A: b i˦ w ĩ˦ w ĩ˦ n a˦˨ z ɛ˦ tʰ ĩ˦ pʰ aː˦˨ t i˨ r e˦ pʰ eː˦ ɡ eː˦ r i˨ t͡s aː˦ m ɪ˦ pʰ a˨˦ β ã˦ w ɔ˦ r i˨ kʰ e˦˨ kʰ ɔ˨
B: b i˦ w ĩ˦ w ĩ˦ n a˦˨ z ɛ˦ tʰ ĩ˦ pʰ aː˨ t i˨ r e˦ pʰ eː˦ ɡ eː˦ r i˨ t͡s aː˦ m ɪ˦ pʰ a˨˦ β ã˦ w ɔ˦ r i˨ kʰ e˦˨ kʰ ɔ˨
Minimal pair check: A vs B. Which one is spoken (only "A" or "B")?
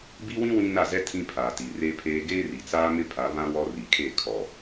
B